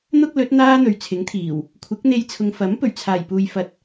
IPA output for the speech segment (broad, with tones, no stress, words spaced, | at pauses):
n̪ʊ˥k̚lɵ˨˥t̚ n̪aː˥n̪ɵ˨ɥt͡sʰɪ˨˥ŋt̪ʰiː˨˩w | kʷʰɪ˨˥k̚n̪e˧jt͡sʰʊ˨ŋ fɐ˨˥m pɵ˨˩ɥt͡sʰaː˨˩jpuː˨jfɐ˨t̚